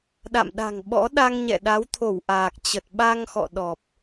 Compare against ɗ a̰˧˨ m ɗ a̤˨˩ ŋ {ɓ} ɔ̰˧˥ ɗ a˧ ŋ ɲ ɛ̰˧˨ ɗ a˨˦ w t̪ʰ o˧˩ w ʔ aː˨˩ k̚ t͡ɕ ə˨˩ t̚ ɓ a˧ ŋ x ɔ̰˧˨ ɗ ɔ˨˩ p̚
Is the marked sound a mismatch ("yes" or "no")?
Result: no